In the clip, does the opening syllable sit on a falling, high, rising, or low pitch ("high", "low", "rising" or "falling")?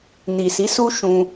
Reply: low